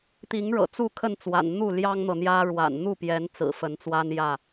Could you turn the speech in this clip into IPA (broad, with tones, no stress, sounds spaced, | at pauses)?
t̪ i˨˦ ŋ ɻ ɤ̰˨˩ t͡s u˥˨ kʰ ə˥˨ n t͡s w a̰˨˩ n n̪ u˥˨ l j ɑ˦ ŋ n̪ ɤ˨ n̪ j ä˦ ɻ w a̰˨˩ n n̪ u˥˨ p j ɛ˨˦ n t͡s ɹ̩˨˩ f ə˨˦ n t͡s w a˦ n j ä˥˨